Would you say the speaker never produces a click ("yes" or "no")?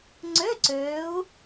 no